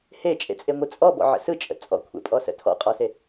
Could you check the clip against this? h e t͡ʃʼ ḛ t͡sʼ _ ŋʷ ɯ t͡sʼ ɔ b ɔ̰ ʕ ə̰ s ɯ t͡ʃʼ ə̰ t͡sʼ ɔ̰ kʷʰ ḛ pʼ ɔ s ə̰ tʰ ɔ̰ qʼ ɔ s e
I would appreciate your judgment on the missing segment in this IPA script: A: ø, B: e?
B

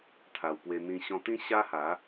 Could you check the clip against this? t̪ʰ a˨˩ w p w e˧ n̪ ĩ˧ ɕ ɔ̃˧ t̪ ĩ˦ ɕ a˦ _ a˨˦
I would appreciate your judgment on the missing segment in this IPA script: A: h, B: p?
A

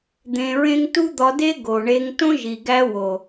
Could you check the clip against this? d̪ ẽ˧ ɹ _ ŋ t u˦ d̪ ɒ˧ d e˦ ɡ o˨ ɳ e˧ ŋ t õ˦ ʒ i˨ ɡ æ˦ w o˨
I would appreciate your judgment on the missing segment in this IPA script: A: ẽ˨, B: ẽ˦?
B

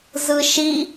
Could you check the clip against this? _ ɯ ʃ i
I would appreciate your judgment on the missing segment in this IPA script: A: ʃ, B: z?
B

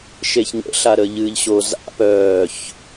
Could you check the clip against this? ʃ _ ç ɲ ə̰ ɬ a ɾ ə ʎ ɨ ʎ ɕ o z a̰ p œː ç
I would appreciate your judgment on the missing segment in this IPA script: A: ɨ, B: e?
B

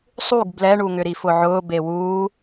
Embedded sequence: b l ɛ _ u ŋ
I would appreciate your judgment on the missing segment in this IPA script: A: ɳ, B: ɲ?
A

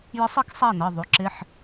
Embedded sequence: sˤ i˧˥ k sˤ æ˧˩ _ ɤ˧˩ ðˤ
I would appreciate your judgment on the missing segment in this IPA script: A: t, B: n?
B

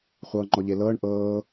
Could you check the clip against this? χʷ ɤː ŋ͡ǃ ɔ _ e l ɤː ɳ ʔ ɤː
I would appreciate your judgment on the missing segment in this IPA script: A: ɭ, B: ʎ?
B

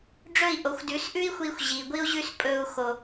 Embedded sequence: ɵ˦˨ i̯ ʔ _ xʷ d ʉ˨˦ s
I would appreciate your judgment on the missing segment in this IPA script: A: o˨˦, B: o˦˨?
A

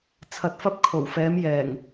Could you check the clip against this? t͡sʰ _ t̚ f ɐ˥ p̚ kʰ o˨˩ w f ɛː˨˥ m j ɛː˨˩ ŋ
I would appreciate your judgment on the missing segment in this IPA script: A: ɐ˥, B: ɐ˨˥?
B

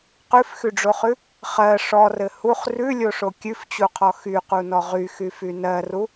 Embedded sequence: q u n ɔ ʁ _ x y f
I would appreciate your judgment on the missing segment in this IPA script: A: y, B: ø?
A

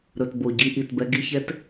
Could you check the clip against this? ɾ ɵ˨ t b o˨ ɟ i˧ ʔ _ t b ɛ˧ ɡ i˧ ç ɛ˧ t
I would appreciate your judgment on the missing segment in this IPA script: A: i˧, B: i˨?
B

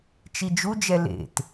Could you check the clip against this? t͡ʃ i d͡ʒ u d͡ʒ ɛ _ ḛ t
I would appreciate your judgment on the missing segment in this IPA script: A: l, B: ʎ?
A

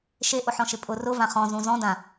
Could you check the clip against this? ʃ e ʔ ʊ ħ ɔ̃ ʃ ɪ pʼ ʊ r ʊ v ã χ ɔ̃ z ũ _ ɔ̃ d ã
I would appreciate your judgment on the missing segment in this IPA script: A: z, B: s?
A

